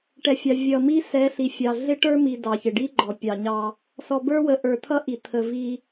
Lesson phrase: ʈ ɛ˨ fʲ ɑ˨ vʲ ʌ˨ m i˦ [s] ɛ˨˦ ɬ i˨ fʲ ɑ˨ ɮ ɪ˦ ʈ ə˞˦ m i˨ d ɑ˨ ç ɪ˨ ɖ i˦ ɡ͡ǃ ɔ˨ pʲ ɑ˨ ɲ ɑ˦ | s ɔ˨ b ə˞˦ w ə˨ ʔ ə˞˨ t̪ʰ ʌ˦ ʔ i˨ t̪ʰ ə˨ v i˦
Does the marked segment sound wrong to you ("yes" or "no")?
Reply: no